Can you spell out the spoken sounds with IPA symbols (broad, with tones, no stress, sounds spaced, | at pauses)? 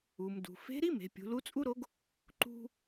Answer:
u˩ m d ṳ˩ f e̤˧˥ ɾ i˥ m e̤˩˧ pʲ ṳ˩˧ l u˧˥ t͡sʼ u˥ ɾ o˧˥ ɡ | ǃ ṳ˧